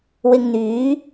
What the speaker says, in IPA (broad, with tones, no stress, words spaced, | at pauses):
wɪ˧ŋn̪yː˨˥